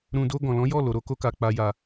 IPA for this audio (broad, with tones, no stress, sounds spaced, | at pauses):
ɾ ũ˨ d o˧ ɡ ɔ̃˨ l ɔ̃˨˦ j ɔ˦˨ l o˨ ɾ o˧ k o˧ k a˨ k͡p a˨ j a˨